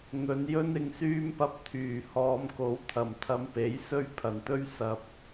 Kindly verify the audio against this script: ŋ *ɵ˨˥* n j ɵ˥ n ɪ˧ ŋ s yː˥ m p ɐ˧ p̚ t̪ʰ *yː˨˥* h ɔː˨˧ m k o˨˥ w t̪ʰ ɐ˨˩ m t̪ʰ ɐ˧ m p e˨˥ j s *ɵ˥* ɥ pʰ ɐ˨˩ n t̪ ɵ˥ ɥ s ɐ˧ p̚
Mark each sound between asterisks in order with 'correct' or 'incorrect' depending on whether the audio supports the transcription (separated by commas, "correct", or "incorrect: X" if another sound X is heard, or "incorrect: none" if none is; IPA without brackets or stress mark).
incorrect: ɵ˨˧, incorrect: yː˨˩, correct